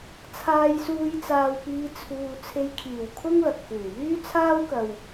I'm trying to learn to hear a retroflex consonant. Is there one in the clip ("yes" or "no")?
no